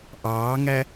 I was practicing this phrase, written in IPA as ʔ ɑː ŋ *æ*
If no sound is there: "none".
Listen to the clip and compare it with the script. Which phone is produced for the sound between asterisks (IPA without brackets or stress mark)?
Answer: æ